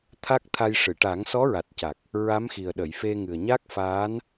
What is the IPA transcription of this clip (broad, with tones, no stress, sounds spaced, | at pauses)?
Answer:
t̪ʰ a˦˥ k̚ t̪ʰ a˧ j ʂ ɨ˨˩˨ ʈ a˨˩˦ ŋ s ɔ˧˥ ɹ a˨˩ t̚ c a˨˩ k̚ | ɹ a˧˥ m x i˨˩ ə̯ ɗ ə˨˩˨ j f e˧ ŋ ɨ˨˩ ə̯ ɲ a˦˥ k̚ f aː˧˥ n